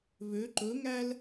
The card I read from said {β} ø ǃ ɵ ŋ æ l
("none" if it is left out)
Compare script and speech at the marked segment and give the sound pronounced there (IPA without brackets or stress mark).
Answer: β